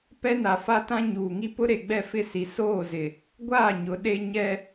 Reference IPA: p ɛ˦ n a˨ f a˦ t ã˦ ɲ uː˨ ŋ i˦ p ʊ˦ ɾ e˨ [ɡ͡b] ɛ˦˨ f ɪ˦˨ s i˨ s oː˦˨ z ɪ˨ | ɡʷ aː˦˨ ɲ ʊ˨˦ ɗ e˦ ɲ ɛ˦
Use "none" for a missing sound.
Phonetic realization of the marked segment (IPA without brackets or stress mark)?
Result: ɡ͡b